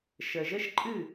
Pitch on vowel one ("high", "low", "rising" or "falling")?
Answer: low